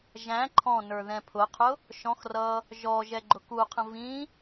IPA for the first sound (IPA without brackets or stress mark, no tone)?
ʒ